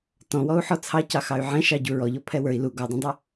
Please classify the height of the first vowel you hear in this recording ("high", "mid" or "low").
mid